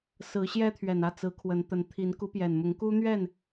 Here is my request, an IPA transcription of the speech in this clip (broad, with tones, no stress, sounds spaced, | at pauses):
s ɹ̩˨˦ ɕ j ɛ˦ t̪ʰ ɥ ɛ˨˩ n ä˥˨ t͡s ɹ̩˨˦ kʰ w ə˨˦ n t̪ ə˨˦ n t̪ʰ i˨˦ n k u˨˦ p j ɛ˨˩ n m ʊ˨˦ ŋ k u˦ n̪ ɥ ɛ˥˨ n